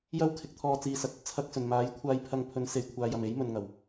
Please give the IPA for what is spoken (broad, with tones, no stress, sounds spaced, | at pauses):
j ɐ˥ w kʰ ɪ˨˥ k̚ t̪ʰ ɔː˧ t͡s iː˨ s ɐ˨ k̚ ɐ˧ p̚ t͡sʰ ɐ˧ k̚ s ɵ˨˩ n m aː˨˥ j kʷʰ aː˧ j pʰ ɐ˧ ŋ pʰ ɵ˨˥ n s e˨˩ j kʷʰ aː˨ j ɐ˨˩ m e˨˥ j m ɵ˨ n ŋ ɐ˨˩ w